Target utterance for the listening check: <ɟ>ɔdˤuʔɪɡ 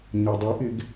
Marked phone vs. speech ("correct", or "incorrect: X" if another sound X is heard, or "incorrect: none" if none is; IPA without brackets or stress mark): incorrect: ɲ